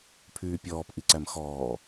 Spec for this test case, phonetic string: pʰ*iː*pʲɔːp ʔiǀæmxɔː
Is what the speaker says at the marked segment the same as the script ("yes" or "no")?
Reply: no